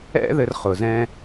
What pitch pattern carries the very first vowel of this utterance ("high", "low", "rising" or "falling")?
high